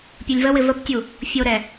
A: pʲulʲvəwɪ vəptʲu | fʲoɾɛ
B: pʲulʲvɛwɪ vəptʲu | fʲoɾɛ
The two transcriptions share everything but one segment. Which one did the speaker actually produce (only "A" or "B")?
A